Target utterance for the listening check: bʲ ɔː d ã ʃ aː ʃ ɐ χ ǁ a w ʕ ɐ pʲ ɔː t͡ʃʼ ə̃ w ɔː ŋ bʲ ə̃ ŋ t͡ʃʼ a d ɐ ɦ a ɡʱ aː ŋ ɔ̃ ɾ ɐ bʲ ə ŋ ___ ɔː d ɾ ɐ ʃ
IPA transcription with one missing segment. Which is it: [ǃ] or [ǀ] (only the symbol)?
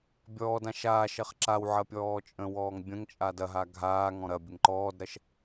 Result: ǃ